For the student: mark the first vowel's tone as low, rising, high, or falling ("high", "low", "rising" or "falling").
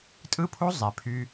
high